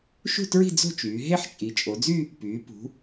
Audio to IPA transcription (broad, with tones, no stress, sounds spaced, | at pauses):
ʃ ṳ˥˧ t ɹ i̤˥˧ d͡z o̤˥˧ t͡ʃ yː˩˧ ɦ e˥˧ ħ t͡ʃʼ i˩˧ t͡ʃʼ o˩˧ d͡z y˥˧ | p yː˩˧ p ṳ˩˧